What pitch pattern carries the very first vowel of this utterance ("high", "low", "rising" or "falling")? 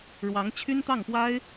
rising